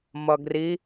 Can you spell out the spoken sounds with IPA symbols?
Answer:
mʌɡri

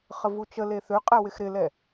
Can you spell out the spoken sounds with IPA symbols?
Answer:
χəvut͡ʃəle θøqʼɛ wɪxɾɪlɛ

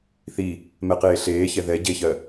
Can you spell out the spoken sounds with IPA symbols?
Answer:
θi | mɛqeːɬeːçɛ ðɛ ɟeçɜ

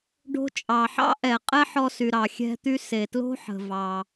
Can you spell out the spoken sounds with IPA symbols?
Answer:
ɖo̤˧t͡ʃʼɑ˩ħɑ̰˥ ʔɛ˩ qʼɛ˥ħɔ˧sy˩ ɾɑ˩xʲɛ̤˧t̪y˧ se˩tlo̤˥ħə̤˩ vɑ˩

